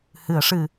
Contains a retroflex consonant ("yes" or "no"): yes